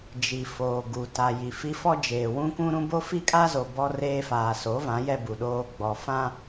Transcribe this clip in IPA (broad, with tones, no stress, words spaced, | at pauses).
d͡ʒi˨foː˨ ɡu˨ta˨ ji˨fi˦ fɔ˦d͡ʒeː˨ wũ˦kũ˦ɾũ˦ bo˦fi˦kʼa˦zo˨ bɔ˦reː˦ faː˨so˨˦vã˨˦ jɛ˦bu˨ɗoː˦ ɡ͡bɔ˨fã˦